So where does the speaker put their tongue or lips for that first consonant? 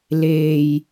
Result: tongue tip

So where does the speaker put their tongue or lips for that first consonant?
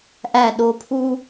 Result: throat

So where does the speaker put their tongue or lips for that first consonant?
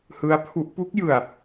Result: throat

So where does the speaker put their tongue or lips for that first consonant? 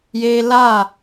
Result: palate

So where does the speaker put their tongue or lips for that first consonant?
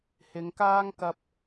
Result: throat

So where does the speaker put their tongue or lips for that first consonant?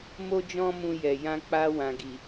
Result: lips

